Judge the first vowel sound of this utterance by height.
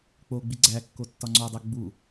mid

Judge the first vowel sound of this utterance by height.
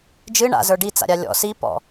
high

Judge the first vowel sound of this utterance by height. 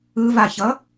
high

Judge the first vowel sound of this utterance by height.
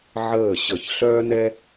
mid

